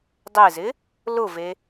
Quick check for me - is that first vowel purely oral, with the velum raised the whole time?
yes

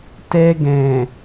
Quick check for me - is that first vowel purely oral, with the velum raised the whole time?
yes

